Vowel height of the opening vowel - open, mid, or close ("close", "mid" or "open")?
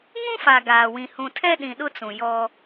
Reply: close